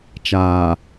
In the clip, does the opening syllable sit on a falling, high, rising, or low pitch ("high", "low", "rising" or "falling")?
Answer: low